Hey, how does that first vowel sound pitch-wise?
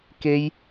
high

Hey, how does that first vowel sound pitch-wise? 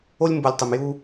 high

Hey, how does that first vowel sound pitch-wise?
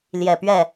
low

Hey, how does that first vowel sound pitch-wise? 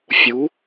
rising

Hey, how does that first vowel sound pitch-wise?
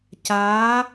rising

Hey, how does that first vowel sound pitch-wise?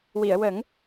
low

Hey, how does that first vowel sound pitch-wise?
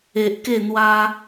high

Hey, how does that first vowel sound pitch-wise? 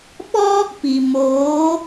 high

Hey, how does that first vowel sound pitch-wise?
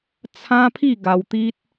high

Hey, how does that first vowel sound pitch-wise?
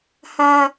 high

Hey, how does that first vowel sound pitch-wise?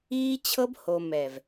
high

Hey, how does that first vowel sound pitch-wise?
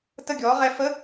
falling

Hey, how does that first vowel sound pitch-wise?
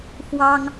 high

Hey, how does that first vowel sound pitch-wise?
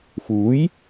rising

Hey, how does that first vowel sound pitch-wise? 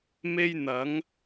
high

